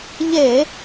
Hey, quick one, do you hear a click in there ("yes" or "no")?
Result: no